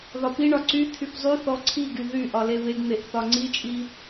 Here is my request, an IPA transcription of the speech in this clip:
ð ɒ p i ɳ ɒ ǀ y t̪ʰ y p zˤ y θ ɔ ǀʰ i ɡ y ð y ʔ ɒ l e β e ɡ n̪ e ʔ θ ɒ ŋ͡ǀ i t͡ʃʼ i

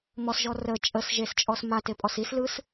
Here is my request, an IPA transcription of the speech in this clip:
m ɔ s ʒ ɔ r ə t͡ʃʼ ə s ʒ e s t͡ʃʼ ɔ s m a t e pʼ ɔ s i s l ɯ s

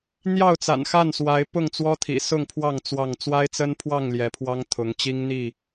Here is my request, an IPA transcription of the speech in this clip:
n̪ j ɑ˥˨ ʊ̯ t͡s a̰˨˩ n x a˥˨ n s w a˨˦ ɪ̯ p ʊ˥˨ ŋ t͡s w ɔ˦ t̪ʰ ḭ˨˩ s ʊ˥˨ ŋ pʰ w ɑ˥˨ ŋ t͡s w ɑ˥˨ ŋ t͡s w a˦ ɪ̯ t͡s ə˦ n pʰ w ɑ˥˨ ŋ l j ɛ˨˦ pʰ w ɑ˦ ŋ t̪ʰ ʊ˨˦ ŋ t͡ɕ i˦ ŋ n̪ i˥˨

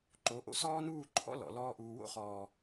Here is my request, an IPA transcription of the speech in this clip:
ǃ o˨˦ ʔ o̰˦ s ɔː˦ n uː˦˨ ǃʰ ɔ̰˦ l ɔ̰˨ l ɔː˦ ʔ uː˧ w o̰˦ χ ɔː˨

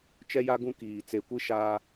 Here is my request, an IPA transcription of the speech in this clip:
t͡ʃ ɛ˦ j a˦ ɡ ũ˦ k iː˨ t͡s e˨ kʷ i˦ ʃ a˦

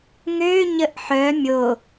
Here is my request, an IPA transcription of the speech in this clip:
ŋ ø ɲ ə ʔ ħ œ mʲ o

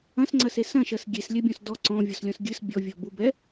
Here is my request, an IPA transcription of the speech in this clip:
ɐ̃ s ŋ͡ǀ ɐ s e s ɐ̃ ʃ ɐ s ɡʲ e s lʲ ɛ bʲ ɔ̃ s d ɔ ǀ ɔ̃ vʲ ɔ s lʲ ɔ̃ s ɡʲ ɨ s bʲ ɔ vʲ ɔ b u b ɛ

